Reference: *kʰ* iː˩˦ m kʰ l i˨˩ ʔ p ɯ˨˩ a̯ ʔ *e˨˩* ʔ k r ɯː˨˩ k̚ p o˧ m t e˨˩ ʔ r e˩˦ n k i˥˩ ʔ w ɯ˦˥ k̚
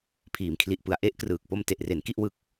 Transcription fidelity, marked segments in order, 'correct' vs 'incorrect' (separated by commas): incorrect, incorrect